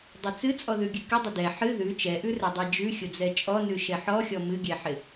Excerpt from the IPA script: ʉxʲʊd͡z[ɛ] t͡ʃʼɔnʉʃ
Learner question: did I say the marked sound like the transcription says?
yes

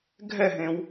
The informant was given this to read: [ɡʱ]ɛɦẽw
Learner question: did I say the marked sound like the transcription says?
yes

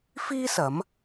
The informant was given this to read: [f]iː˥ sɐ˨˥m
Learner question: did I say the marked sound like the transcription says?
yes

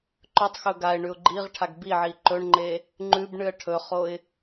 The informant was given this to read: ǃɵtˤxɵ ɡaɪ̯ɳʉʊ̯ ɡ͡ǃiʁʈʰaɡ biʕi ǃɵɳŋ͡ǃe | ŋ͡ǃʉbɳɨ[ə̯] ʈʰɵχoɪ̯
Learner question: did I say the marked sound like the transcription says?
yes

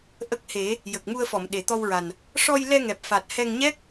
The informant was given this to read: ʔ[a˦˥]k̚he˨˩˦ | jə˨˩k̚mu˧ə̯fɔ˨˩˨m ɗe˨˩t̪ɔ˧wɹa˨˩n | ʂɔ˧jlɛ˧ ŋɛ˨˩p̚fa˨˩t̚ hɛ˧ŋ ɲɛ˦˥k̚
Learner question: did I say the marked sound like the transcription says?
no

